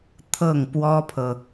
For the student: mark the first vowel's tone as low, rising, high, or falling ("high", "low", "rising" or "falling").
falling